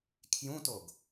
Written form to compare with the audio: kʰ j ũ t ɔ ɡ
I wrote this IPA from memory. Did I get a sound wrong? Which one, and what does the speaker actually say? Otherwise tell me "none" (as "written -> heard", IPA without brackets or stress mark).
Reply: ɔ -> o